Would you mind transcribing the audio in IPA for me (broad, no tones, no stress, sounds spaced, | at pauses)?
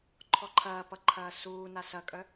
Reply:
ǃʰ ɔ ǃʰ ɐː p ʌ ǃʰ ɐː s uː n a s ɐ kʼ œ